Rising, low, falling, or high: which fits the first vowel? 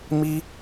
high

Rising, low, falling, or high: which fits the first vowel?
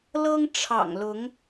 high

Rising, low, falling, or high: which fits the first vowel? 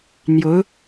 rising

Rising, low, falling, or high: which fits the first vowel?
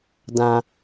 low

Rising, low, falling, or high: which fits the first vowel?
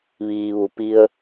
low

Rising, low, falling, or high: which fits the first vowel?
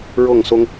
falling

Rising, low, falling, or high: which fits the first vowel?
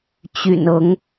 low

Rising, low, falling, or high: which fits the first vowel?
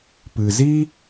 low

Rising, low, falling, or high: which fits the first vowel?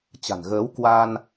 low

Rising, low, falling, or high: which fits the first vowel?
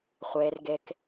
low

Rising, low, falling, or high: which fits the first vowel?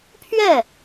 falling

